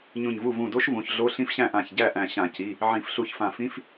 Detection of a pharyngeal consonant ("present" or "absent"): present